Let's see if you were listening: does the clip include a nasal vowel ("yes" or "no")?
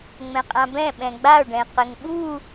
yes